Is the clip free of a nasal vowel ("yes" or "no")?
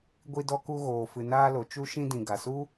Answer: no